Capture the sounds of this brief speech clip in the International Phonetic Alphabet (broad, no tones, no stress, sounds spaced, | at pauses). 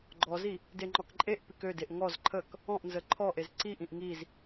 ɡ͡ǃ ɔ z i | d e ŋ͡ǃ ɔ k ǃʼ e ʔ p i k ø d e ʔ ŋ ɔ z ǃʰ ə k | ɔ̃ ʔ n z ə ǃʰ ɔ ʔ e z ǀ i ʔ ĩ ʔ ŋ i z